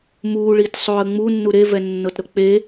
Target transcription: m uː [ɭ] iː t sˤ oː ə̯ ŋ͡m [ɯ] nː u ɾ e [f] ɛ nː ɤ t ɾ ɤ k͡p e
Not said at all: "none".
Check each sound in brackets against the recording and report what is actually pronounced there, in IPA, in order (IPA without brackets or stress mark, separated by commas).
ɭ, u, v